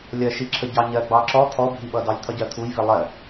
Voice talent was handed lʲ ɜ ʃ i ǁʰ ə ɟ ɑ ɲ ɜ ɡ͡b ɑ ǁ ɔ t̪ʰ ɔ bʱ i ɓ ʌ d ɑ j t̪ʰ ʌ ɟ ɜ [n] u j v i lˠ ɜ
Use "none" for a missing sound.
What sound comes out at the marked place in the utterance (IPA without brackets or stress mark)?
t̪ʰ